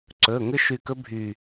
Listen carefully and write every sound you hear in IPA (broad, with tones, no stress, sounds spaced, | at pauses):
ǀ ɵ˩˧˩ ŋ ʏ˦˥ ʃ y˧˩ k ɵ˦˥ bʱ y˧˩